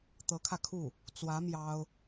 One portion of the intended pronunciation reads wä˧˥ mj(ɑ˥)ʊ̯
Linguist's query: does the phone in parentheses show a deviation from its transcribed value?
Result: no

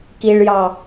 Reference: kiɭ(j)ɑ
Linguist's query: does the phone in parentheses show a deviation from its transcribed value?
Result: no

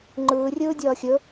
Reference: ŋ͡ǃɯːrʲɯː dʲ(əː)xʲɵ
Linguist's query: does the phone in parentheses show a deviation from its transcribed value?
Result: yes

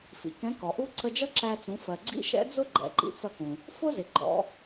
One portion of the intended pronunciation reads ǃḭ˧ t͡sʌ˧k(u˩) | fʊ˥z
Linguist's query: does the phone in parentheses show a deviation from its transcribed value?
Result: yes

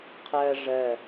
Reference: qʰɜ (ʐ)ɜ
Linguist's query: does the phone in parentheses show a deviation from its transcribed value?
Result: no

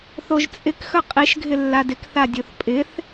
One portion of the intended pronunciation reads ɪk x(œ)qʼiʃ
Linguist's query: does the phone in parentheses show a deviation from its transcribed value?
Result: no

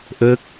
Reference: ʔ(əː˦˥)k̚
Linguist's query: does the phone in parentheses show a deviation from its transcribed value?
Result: no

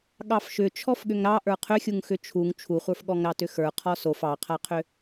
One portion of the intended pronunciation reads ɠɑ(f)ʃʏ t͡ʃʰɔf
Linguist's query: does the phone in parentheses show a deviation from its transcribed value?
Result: no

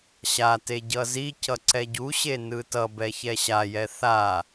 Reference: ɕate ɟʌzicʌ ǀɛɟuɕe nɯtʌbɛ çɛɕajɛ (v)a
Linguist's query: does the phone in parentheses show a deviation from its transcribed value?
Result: yes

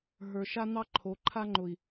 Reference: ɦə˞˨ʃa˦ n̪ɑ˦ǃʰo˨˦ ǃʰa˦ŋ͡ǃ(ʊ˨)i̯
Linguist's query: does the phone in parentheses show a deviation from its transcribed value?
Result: no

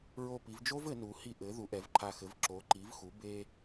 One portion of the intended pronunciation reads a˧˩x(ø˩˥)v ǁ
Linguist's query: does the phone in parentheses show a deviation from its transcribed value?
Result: yes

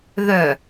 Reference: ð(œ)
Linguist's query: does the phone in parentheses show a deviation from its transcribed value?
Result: no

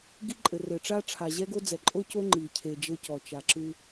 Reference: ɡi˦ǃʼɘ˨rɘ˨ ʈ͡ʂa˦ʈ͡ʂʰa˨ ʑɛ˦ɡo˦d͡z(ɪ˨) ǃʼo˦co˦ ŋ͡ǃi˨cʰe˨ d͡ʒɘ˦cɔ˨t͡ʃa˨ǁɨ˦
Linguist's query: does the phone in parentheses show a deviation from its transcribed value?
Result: yes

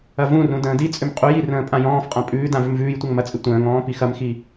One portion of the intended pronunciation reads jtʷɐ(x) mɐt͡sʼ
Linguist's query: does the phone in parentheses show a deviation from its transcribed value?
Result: yes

